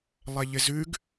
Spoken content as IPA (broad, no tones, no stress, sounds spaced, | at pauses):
lˠ ɛ ʎ ɪ z ʉ ɡ